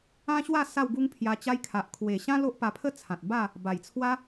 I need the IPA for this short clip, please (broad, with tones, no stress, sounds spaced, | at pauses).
ã˦ ɕ w a˥˧ s a˥˧ w ɡ u˦ ŋ pʰ j a˧ t͡ɕ a˧ j kʰ a˨ ʔ kʰ w e˨˩ ɕ ã˦ l o˦ ʔ p a˧ pʰ ə˥˧ t͡sʰ ã˨ t̚ b a˥˧ | b a˨˩ j t͡sʰ w a˦